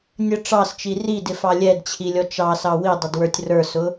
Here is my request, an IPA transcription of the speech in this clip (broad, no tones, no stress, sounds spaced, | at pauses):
nʲ ə ʈ͡ʂ ɑ s t͡ʃ i r i d ɪ f ɑ lʲ ɛ d t͡ɕʰ i lʲ ɔ t͡ʃ ɑ s ɑ w i dˤ ɪ d w ə˞ tʲ r ə˞ s ʊ